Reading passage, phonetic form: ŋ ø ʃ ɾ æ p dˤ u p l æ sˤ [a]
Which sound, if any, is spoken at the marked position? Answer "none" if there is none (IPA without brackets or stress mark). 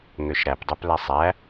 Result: æ